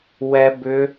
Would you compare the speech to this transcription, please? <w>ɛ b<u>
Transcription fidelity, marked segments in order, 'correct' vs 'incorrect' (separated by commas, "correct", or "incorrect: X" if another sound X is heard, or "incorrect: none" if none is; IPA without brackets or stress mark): correct, incorrect: ʏ